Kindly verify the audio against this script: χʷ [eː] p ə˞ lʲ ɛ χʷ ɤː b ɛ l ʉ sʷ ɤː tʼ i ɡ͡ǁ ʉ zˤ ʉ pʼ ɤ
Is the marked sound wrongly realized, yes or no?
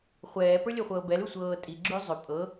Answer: yes